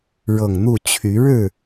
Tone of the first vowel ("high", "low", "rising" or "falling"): low